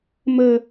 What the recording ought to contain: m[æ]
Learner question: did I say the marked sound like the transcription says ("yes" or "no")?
no